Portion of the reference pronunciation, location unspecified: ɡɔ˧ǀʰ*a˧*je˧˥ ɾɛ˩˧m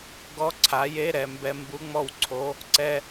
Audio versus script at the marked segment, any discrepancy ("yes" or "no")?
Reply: yes